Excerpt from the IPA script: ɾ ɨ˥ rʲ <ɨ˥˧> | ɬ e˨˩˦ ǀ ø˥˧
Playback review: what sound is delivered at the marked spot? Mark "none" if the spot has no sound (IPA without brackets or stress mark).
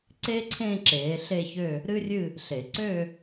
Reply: ɨ˥˧